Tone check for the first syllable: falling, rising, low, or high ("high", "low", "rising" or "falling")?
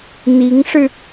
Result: rising